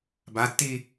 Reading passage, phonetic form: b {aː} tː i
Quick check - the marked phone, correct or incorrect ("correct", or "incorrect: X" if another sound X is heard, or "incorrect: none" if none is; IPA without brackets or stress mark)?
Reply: incorrect: a